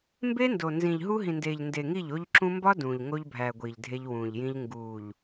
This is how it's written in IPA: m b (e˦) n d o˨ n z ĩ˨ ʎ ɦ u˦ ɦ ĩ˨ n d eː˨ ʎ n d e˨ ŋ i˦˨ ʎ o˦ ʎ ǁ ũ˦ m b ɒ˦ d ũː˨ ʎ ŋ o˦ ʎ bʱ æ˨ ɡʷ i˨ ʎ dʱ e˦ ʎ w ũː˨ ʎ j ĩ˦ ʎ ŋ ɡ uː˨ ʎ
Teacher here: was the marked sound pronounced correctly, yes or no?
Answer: yes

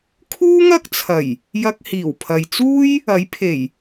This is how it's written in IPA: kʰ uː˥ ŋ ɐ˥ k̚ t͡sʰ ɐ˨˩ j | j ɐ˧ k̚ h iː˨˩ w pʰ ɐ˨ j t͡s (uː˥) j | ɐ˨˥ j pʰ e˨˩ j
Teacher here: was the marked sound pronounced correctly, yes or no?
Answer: yes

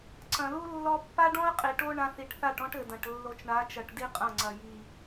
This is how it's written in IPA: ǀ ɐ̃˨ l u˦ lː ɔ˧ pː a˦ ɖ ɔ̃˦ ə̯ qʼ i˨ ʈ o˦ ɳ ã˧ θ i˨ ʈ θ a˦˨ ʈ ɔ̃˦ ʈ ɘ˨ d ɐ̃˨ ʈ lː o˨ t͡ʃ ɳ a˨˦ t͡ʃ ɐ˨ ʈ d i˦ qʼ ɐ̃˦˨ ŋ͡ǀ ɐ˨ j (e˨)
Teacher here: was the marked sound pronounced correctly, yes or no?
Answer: no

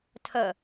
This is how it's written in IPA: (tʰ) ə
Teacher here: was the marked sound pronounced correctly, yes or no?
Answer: yes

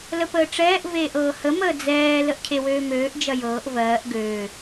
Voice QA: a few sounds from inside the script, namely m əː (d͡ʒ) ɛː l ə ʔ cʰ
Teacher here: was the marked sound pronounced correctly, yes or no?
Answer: no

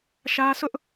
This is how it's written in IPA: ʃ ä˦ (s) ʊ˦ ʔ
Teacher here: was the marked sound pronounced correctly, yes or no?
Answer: yes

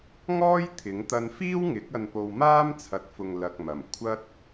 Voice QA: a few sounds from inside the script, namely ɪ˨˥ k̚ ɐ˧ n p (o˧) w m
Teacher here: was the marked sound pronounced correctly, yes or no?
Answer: yes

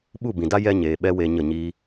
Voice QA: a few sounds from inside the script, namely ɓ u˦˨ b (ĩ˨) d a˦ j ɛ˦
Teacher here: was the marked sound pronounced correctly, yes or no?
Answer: yes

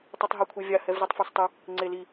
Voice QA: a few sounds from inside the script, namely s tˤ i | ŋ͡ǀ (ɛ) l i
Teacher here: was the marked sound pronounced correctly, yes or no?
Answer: no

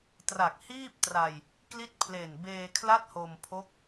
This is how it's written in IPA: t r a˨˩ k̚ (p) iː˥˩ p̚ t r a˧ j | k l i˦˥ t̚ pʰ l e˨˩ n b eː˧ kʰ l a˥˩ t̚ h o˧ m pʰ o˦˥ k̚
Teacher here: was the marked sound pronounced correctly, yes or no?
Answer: no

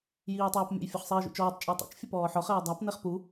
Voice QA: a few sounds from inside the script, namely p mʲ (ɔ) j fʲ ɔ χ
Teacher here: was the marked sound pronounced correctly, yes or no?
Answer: no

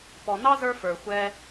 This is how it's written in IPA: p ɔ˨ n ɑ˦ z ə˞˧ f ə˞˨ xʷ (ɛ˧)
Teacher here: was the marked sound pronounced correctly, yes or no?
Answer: yes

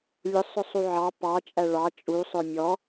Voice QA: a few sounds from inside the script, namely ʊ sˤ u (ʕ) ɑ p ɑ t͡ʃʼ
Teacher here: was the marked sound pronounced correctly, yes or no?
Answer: yes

